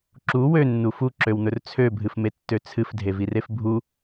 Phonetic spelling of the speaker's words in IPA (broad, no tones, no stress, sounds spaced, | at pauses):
ǁ u w ø nː u f u ǁ ø w n̪ ɵ r t͡sʰ ø bʱ ɨ f m e tː ø t͡sʰ ɨ f dʱ e v i r e f bʱ u